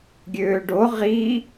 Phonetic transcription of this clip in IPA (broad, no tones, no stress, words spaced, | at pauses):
ɡʲøːɖo ʁiː